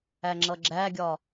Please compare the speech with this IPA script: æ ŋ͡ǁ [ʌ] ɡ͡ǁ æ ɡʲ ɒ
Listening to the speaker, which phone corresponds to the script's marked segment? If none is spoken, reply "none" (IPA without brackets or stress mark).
ʌ